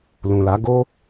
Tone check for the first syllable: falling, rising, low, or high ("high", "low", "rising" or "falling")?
low